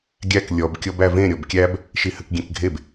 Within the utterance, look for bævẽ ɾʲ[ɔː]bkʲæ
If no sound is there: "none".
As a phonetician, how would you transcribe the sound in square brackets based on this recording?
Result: ɔ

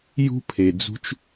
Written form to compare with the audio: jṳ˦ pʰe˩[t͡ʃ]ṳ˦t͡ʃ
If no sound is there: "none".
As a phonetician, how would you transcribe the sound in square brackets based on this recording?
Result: d͡z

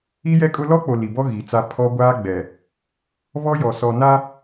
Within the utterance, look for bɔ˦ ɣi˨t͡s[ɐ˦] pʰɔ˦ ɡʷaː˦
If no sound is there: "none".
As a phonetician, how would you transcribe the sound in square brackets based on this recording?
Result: a˦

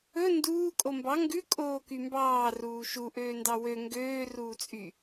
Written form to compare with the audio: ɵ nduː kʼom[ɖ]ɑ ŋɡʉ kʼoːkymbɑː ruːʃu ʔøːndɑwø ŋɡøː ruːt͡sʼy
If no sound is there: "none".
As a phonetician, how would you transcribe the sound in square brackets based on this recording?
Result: b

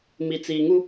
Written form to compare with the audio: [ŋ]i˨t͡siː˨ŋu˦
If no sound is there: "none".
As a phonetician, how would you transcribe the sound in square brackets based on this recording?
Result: m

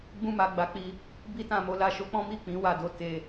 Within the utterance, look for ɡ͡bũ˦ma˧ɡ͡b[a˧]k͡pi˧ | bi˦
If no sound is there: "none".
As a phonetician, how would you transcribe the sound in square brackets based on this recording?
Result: a˧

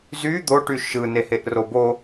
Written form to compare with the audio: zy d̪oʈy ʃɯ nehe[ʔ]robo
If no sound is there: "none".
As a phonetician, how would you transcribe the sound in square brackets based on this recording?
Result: ʔ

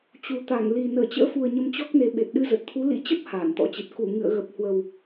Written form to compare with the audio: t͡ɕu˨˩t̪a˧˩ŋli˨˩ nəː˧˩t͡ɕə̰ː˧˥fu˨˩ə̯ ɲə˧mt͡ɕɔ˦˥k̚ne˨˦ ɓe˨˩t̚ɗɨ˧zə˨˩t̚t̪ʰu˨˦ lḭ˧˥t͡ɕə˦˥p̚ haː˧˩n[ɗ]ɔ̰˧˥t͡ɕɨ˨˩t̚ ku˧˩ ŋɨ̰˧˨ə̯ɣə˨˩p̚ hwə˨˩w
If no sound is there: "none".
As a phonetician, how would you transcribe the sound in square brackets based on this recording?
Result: t̪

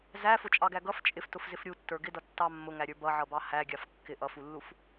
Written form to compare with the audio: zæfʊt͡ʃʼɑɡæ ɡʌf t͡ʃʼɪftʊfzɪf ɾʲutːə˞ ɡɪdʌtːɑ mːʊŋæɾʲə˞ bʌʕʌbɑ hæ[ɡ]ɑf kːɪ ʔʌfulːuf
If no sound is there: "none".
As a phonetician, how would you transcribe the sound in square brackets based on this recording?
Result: ɡʲ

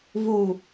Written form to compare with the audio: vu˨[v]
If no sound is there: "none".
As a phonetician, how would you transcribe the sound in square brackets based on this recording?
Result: none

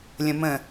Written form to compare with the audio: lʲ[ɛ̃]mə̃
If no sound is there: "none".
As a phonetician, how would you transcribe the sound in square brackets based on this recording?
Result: ə̃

